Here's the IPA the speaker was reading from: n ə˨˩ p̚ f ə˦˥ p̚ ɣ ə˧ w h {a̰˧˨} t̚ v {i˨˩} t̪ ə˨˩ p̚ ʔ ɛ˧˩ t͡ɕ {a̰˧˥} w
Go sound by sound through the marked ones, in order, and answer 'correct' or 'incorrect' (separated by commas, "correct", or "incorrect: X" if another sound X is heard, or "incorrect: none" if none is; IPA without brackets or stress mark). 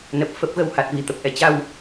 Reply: incorrect: a˨˩, correct, incorrect: a˧